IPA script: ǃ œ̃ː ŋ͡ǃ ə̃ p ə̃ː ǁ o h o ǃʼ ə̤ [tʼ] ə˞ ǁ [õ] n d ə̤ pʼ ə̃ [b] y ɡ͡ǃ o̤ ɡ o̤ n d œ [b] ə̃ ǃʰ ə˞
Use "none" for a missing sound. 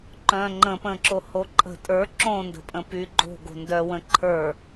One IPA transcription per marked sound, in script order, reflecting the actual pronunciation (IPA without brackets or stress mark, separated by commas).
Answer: tʼ, õ, p, w